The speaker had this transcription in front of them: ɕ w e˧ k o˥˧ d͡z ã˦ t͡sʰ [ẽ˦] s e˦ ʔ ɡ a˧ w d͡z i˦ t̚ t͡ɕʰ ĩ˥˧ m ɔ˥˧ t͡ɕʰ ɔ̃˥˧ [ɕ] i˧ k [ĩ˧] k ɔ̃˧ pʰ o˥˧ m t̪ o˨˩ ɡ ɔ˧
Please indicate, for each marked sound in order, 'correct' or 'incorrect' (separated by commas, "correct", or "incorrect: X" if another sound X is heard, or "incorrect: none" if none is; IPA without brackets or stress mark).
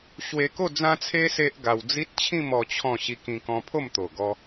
incorrect: e˦, correct, correct